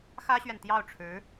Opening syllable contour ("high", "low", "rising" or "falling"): high